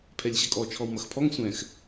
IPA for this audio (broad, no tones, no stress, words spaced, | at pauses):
pʰɛlʲɕɐkʼɔ t͡ʃʰɔwmɐxpʰɔŋ sʷɛ̃x